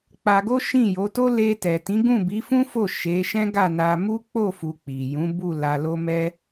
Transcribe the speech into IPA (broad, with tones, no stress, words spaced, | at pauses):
k͡pa˧ɡo˦ ʃĩ˦˨jo˨˦to˦ le˧tɛ˨tĩ˨˦ɡũ˦˨ bi˨˦fũ˦fo˦˨ ʃe˨˦ ʃɛ̃˦ɡa˦˨na˧ mu˦k͡po˦˨fu˨ k͡pi˨jũ˨˦ bu˦˨ la˧lo˦mɛ˦